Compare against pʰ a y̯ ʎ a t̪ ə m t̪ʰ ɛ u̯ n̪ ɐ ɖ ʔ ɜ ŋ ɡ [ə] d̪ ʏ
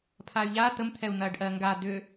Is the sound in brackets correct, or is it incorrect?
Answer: incorrect